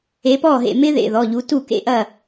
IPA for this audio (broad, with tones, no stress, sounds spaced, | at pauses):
e˨˦ p ɔ˥˩ ɦ ḛ˧˩ m ɪ˦˥ ð ḛ˩˧˩ ð ɔ˩˧˩ ʎ u˨˦ t u˥˩ k ḛ˥˩ ʔ ɐ˥˩